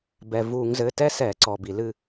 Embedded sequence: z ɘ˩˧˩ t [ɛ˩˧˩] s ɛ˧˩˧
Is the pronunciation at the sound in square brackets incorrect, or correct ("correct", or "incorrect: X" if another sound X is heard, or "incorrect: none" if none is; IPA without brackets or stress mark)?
incorrect: ɛ˦˥